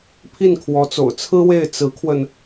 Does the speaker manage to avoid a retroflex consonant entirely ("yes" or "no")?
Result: yes